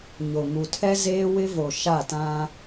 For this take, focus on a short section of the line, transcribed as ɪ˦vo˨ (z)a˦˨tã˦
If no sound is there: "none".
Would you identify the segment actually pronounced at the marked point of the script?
ʃ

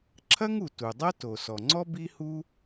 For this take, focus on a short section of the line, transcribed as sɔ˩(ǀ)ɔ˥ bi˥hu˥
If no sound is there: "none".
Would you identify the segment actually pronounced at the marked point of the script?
ŋ͡ǀ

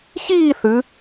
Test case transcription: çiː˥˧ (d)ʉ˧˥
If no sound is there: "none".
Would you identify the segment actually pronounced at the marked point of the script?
θ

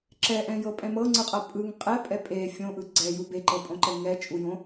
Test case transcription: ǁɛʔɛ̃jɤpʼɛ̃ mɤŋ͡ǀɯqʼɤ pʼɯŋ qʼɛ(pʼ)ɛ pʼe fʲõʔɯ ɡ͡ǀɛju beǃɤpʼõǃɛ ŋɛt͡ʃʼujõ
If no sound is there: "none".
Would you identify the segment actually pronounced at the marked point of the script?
pʼ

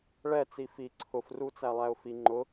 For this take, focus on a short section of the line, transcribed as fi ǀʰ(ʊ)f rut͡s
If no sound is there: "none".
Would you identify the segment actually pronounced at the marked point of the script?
ʊ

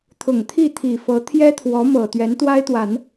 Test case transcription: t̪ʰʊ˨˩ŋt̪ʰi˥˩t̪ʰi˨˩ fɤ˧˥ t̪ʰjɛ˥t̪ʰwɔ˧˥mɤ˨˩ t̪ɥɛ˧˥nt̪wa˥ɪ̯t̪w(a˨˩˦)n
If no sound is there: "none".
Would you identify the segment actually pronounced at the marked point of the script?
a˨˩˦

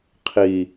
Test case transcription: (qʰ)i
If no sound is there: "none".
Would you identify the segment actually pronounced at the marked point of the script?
qʰ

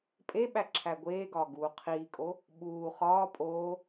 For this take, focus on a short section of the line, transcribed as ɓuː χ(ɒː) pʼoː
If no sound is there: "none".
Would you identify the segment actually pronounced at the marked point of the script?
ɒː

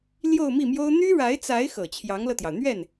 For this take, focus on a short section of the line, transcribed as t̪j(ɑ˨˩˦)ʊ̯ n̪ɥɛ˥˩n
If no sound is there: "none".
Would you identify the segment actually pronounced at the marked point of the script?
ɑ˩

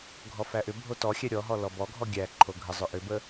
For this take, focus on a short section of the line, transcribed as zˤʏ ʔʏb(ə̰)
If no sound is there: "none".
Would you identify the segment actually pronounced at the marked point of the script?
ə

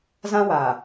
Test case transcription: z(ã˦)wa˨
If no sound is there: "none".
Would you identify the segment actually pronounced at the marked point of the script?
ã˦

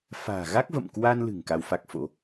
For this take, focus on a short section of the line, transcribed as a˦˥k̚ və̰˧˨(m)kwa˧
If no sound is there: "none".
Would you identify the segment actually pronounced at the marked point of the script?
m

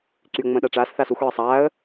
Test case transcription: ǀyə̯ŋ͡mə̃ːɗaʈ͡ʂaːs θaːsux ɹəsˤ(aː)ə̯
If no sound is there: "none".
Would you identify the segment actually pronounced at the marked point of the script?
aː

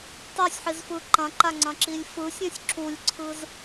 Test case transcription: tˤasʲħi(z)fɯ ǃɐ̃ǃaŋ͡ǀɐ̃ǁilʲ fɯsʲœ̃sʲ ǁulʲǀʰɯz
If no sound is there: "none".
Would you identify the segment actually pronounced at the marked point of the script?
z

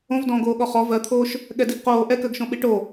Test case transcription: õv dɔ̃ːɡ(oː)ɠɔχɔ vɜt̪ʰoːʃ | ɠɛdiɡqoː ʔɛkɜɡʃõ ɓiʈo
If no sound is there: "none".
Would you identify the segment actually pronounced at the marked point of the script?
oː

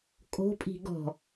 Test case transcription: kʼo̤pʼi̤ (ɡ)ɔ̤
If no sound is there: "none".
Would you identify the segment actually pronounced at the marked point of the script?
ɡ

